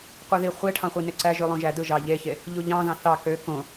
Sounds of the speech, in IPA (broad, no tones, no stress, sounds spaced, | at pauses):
qʷ i ð i χʷ e ʈʰ ɑ̃ χʷ i n e ǀ æ ʒ y lˠ õ ʒ æ d ɯ ʒ ɑ ʎ e ç e | ʎ u ʎ ɑ̃ ð ɑ̃ θ ɑ k ø k õ